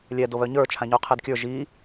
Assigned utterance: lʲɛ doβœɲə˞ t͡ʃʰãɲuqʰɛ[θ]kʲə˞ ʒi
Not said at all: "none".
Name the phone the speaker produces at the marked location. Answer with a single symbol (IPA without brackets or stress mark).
d